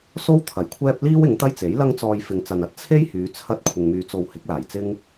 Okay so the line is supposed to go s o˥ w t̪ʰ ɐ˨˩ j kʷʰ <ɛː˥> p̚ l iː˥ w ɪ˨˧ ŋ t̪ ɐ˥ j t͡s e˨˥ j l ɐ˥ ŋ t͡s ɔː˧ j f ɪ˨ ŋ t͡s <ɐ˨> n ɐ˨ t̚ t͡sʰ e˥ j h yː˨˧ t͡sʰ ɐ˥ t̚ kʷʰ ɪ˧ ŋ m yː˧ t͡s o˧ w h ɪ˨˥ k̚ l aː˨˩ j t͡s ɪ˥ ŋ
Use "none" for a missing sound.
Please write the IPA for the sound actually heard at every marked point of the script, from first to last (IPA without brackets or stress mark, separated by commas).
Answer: ɛː˥, ɐ˨